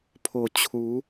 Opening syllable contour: low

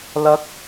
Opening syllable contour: rising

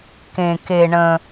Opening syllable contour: low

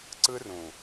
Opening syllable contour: high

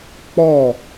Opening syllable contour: falling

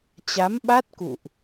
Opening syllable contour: rising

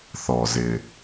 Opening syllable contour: low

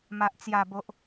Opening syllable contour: low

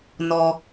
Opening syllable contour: low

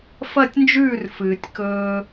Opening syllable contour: falling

